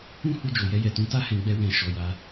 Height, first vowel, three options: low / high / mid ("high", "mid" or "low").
high